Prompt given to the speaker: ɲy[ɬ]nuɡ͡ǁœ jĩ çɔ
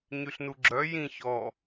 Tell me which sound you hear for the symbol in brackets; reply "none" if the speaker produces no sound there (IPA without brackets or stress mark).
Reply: ɬ